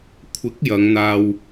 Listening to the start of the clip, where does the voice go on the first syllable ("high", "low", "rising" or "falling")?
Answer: rising